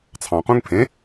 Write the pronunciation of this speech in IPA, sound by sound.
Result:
t͡sʰ ɑ̃ q ũ ŋ pʰ ẽ

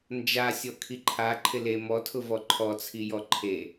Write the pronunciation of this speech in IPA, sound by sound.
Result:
n d͡ʒ a sʲ ɔ kʰ i ǃʰ a ǃʰ ɪ l e m ɔ tʰ ʊ v ɔ ǃʰ ɔ t͡sʰ i j ɔ ǃʰ e

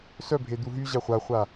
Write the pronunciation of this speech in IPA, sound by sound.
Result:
s œ bʱ e d̪ u ɦ y ʑ a χʷ a χʷ a

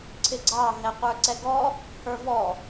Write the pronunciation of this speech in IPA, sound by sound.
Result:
ǀʰ ɪ ɡ͡ǀ ɑ ɦ ɛ qʷ ə˞ ǀ ɛ ɡ ɔ | h ə˞ v ɔ

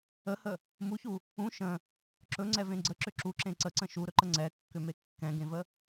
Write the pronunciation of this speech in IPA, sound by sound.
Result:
ə h ə | m u ç u | ũ ʃ ə̃ | ǁ ɵ ŋ͡ǀ ɛ v ẽ ɡ͡ǀ ə ǁ ʏ ǁ u ǁ ẽ ǀ ə ǀ ə̃ ʃ u ɾ ɵ ǃ ə ŋ͡ǀ ɛ kː ʏ m e kː ɛ̃ ɡ ẽ v ə

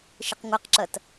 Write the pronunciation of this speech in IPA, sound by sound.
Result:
ʃ ə q ŋʷ ɐ q ǁ ɐ t

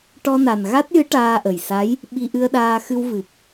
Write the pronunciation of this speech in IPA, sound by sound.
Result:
ʈ ɔ˧ n a˨˩ n ɣ a˦˥ t̚ j ɨ˧˥ ʈ aː˧ ʔ ə˨˩ j s a˧˥ j | ɓ i˧ ʔ ɨ˧ ə̯ ɗ aː˧ x ɨ˧ w v ɨ˨˩ p̚

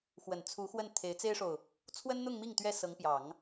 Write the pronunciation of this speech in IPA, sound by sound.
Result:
x w ə˨˩ n t͡sʰ u˧˥ x w ə˥˩ n t̪ʰ e˧˥ ɪ̯ t͡s e˥ ɪ̯ ʂ o˨ ʊ̯ | t͡sʰ w ə˥ n n̪ ʊ˥˧ ŋ m i˥˩ ŋ t̪ ɥ ɛ˥ s ɤ˧˥ ŋ p j ɑ˨˩˦ ŋ

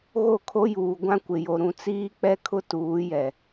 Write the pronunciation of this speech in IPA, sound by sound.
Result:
ɣ o˦˨ kʰ o˦ j uː˨ ɡʷ ã˦ kʷ ɪ˨ j o˨ ɾ ũ˨ t͡s iː˦ k͡p ɛ˦ kʰ ʊ˦ t uː˨˦ j ɛ˨

